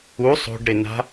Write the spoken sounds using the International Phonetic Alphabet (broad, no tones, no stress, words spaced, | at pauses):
u sˤo̤ɖɾɪna̤